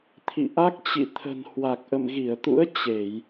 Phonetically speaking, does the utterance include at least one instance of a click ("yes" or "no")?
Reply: no